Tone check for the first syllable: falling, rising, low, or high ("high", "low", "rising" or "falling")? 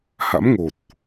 rising